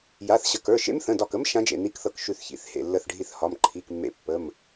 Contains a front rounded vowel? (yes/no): no